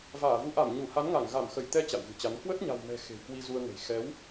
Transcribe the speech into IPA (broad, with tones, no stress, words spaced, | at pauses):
vaː˧˩vu˨˦ ʔa˧˩m ɲu˧˩ha˨˦nŋa˧˩ŋ ɣa˧˩mxə˧˩jt̪ɛ˧ t͡ɕa̰˧˨wɣɨ̤˨˩t͡ɕa˨˦n kwə˦˥t̚ɲa̤˨˩wmɛ̤˨˩ xe̤˨˩wkwi˧zu˧ə̯ŋə̤˨˩j xɛ˨˦w